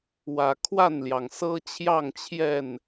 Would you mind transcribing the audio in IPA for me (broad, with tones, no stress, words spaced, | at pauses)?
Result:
wä˨˩kʰwa˥˨nljɑ˩ŋ sɤ˦ t͡ɕʰjɑ˥˨ŋt͡ɕʰjɛ˥˨n